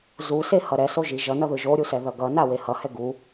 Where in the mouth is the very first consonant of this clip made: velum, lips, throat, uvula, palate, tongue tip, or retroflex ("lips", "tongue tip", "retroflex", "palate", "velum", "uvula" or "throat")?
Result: tongue tip